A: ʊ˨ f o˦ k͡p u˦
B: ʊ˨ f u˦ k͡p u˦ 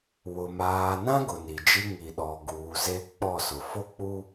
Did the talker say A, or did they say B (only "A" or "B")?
A